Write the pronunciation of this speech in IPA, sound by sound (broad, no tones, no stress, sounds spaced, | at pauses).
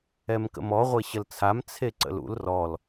ɛ m k ə̰ m ɔ ʁʷ e ɕ ə l t͡sʰ a m t͡sʰ e ǀ ə̰ l ṵ l r ɔ l